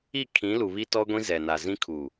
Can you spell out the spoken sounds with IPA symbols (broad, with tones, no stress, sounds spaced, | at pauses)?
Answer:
i˦˨ kʰ ĩ˨˦ l u˨ β i˦ t ɔ˦ ɡʷ ĩ˦ z ɛ˨ n a˨ z ĩ˦ kʰ u˨